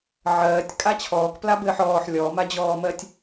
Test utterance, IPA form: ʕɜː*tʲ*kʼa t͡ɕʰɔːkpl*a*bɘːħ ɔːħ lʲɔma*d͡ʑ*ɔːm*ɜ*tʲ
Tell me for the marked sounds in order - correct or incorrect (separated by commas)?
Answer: correct, correct, correct, correct